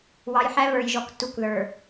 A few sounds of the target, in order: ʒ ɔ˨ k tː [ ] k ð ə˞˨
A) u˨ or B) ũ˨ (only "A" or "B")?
A